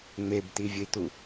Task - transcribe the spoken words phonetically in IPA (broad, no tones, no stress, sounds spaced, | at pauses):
ŋ͡m e b t̪ i vʲ ə i̯ t̪ u